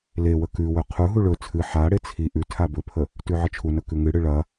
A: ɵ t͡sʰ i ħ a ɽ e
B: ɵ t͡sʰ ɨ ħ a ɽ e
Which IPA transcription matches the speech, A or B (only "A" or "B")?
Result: B